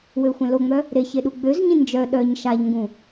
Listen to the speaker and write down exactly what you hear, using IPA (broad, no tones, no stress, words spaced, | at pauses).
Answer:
wøxʷɛ̃loŋ͡mœ | ɾeçe ɗuɡ͡bøzɲĩ nd͡ʒœ ɗœɲ ʃaʎŋɡũ